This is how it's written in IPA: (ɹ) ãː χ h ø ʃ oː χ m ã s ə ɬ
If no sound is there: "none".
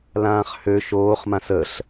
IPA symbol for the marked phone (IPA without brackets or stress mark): l